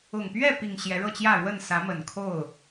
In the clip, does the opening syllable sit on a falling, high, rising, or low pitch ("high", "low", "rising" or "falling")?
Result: low